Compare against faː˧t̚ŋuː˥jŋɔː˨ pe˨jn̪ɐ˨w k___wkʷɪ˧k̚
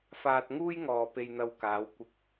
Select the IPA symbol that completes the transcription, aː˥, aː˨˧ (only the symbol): aː˨˧